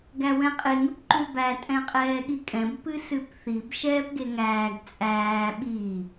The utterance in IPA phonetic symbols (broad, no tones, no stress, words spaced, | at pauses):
ɡæwɛ̃qʼeŋ ʉpǃʉbæ tʼɛ̃qʼɛːɠikʼɛ̃b pɨsɨpθib ʃɛːpɡeŋæːɡ t͡sʼæː ɓi